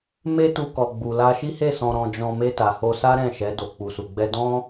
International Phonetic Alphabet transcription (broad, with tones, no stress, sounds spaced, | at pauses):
m e˦ t u˧ k ɔ˨ ɡ͡b u˨ l a˧ ʃ i˦ h e˦˨ s ɔ̃˧ ɾ ɔ̃˧ d͡ʒ ɔ̃˧ m e˧ t a˨ h o˧ s a˦ ɾ ɛ̃˦˨ ʃ ɛ˨˦ d o˧ k͡p u˧ s u˧ ɡ͡b ɛ˦ d ɔ̃˦